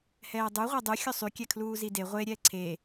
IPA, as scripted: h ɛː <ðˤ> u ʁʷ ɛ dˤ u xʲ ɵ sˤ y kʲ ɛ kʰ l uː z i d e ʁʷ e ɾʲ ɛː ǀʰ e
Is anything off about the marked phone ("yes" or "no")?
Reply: yes